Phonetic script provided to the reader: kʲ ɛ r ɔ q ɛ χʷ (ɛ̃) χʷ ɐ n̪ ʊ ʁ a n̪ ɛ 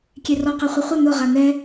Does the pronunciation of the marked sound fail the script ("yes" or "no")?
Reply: yes